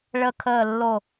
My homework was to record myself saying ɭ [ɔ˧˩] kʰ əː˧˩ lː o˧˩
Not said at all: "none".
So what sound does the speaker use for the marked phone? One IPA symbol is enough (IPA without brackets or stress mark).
ə˧˩